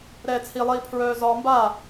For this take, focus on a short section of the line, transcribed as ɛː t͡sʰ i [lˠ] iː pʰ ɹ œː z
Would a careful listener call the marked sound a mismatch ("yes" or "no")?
no